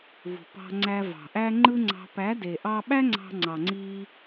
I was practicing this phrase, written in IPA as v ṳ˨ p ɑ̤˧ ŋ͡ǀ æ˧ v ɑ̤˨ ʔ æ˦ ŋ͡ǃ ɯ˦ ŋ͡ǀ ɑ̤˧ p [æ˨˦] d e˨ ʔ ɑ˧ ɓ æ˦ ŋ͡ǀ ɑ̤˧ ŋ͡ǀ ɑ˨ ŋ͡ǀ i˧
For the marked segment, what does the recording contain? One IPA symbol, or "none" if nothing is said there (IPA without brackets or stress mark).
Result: æ˨˦